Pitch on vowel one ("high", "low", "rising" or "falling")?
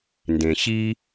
low